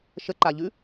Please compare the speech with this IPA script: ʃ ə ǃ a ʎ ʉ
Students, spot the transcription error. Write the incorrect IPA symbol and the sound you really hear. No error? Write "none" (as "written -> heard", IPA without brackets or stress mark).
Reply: none